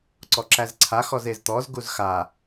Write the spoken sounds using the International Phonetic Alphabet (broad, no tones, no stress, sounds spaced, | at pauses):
ǀ ɔ ǁ æ z ǀʰ a x ɔ z e z t̪ ɔ z ɡ u z x a